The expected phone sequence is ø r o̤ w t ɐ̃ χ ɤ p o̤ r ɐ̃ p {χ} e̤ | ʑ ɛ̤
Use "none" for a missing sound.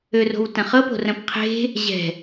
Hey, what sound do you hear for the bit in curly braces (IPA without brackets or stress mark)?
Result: qʰ